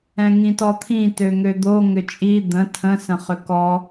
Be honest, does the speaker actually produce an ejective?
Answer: yes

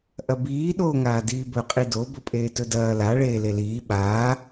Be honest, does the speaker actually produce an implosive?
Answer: yes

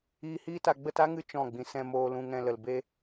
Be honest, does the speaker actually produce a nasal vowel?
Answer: yes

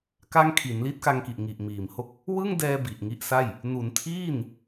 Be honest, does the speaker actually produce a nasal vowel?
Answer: no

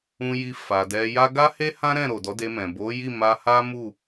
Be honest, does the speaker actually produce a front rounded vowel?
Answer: no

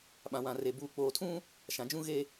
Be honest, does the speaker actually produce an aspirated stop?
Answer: yes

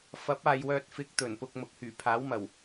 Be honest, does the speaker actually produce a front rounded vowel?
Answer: yes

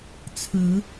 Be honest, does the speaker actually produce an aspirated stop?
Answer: yes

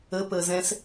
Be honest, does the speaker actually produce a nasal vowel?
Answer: yes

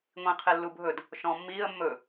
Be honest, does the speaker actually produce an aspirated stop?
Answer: yes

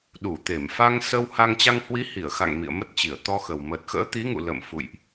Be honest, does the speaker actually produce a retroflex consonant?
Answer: no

